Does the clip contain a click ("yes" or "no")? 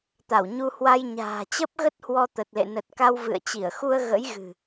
no